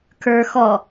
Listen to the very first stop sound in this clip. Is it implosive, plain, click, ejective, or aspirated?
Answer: aspirated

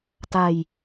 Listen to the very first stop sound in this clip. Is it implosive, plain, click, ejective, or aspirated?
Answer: plain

